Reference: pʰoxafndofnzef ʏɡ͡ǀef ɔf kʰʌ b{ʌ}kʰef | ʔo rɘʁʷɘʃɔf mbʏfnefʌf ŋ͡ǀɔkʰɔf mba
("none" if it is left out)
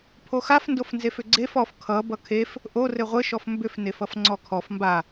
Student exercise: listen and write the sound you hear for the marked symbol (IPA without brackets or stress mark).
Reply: ʌ